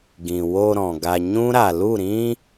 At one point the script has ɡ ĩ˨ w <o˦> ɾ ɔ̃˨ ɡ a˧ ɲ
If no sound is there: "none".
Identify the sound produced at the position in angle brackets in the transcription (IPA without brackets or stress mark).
o˧